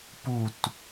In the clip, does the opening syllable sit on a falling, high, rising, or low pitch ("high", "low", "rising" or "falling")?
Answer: falling